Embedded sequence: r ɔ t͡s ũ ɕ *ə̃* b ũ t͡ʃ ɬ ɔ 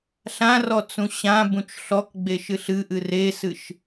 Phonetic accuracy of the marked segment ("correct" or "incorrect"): incorrect